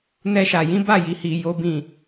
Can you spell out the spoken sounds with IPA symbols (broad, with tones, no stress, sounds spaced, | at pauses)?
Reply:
n ɛ˦ ʃ a˧ j ĩ˦ b a˦˨ j i˧ h i˧ j o˦ b ĩ˦˨